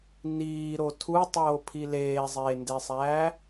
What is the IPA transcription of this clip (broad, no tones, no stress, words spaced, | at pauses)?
niːɾo tʰutˤoːpʰi leːzˤeːndesˤæː